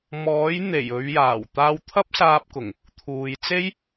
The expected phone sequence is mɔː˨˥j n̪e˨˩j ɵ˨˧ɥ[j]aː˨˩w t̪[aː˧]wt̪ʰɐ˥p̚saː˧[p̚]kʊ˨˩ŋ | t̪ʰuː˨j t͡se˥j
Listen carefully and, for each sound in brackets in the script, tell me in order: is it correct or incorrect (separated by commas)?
correct, correct, correct